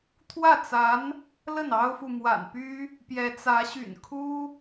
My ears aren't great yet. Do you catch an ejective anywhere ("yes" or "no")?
no